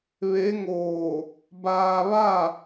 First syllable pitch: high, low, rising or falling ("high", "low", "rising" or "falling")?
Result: rising